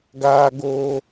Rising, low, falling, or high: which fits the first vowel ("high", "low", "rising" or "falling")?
high